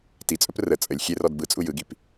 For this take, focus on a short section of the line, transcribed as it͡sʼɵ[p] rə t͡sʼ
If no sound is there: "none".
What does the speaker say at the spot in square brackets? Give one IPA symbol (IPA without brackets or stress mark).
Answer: p